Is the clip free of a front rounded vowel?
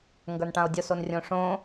yes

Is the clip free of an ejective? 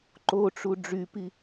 yes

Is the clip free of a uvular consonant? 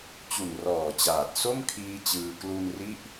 yes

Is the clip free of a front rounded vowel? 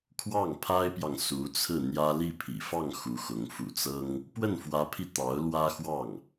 yes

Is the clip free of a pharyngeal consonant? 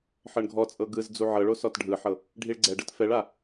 no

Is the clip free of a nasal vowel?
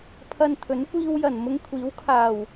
yes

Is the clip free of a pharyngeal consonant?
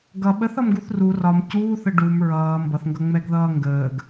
yes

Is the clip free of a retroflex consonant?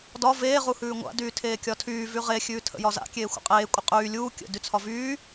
yes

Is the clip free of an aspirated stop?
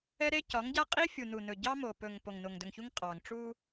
yes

